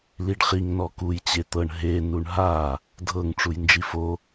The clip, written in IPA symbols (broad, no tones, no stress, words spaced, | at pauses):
liɖχiŋ nɔkuj t͡ɕet̪ɤɳ ɦe nuɳɦa | dʱɤŋ ʈ͡ʂujnd͡ʒifo